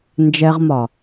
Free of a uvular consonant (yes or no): no